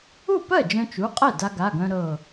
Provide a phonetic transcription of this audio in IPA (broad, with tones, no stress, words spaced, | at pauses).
u˥˩pɜ˥˩ d͡ʒœ̃˧t͡ʃu˩˧˩qʼɛ˥˩ da˧ɡa˩˧˩ɡœ̃˧ ɾɤ˧˩